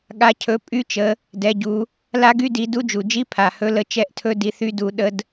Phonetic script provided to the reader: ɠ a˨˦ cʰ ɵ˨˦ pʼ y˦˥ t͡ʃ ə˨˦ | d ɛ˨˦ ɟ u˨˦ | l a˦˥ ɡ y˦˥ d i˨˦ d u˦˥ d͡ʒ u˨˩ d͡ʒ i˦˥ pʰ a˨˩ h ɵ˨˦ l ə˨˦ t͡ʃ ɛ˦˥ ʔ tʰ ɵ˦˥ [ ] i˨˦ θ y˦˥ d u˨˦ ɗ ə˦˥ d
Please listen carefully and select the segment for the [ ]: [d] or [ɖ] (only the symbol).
d